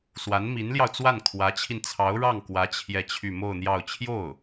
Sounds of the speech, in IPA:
s w a˧˥ n m i˧˥ n l j ɑ˧ ʊ̯ t͡s w a˥˩ n kʰ w ä˧˥ t͡ɕʰ i˧ n t͡sʰ ɑ˧˥ ʊ̯ ɻ ɑ˥˩ ŋ k w ä˧˥ t͡ɕʰ j ɛ˥˧ t͡ɕʰ y˥˧ m o˥˧ ʊ̯ n̪ j ɑ˥˧ ʊ̯ t͡ɕʰ j o˥˩ ʊ̯

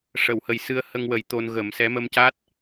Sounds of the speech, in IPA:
ʂ ə˨˩˨ w h ə˨˩ j s ɨ˧ ə̯ h ə˧ ŋ w ə˨˩˦ j t̪ o˧ n ɣ ə˨˩˦ m s ɛ˧˥ m ə˧ m c a˦˥ t̚

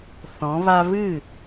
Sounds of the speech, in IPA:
θ ɔ̃˨˦ β a˦ β ɨ˦˨

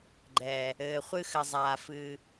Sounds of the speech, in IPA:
ɡ͡ǃ ɛ˨ | ɘː˨ χʷ ɨ˧ x ɘ˨ zˤ aː˨ f ɨ˧

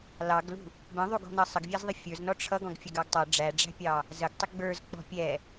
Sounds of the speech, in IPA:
l ɑ ɡ l ṳ | b ə̃ ðˤ u ɡ ɔ̤ n ʌ sˤ ə ɡ vʲ æ z ðˤ ɪ fʲ ə˞ z n ɔ ʈ͡ʂʰ ʌ ɡ ɔ̃ ɡ fʲ ə ɡ ɑ ɡ tˤ ʌ ɖ͡ʐ æ ɖ͡ʐ æ̤ pʲ ɑ | z ə ɡ tˤ ɪ ɡ͡b ə˞ z k͡p ɔ̤ pʲ ɛ

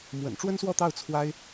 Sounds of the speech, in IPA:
m w ə̰˨˩ n ʈ͡ʂ w ə˥ n s w ɔ˥˧ t̪ ɑ˥˩ ʊ̯ t͡sʰ w a˥ ɪ̯

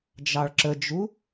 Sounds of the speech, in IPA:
d͡ʒ ɑ ɭ ǁ ə d͡ʒ u

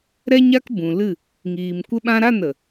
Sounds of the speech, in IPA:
ɾ ɛ˦ ɲ a˦ k b ũ˨ l ɨ˦˨ | ŋ iː˨ m kʷ ə˧ ɓ ã˧ ɾ a˦˨ n ə˨

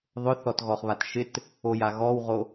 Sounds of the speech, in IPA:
ðˤ ʊ θ ɔ t ɣ ɔ χ β a t ʃ ɪ t | o j a ɣ ɔ w ʁ o

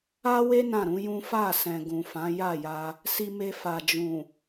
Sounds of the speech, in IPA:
a˦ w e˦ n ã˦˨ ɾ ũ˨˦ j ũ˦ f a˦˨ s ɛ̃˨ ɡ ũ˨ f ã˨˦ j a˦˨ j a˧ | s i˧ m e˧ f a˨ d͡ʒ ũ˨

